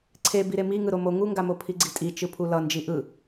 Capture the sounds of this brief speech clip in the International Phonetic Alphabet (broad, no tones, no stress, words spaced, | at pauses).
ǀʰe biɾemi ŋɯɾomo ŋuŋɡamo pʰiɡ͡ǀitʼi t͡ʃɯpʰulʌ nd͡ʒiʔɯ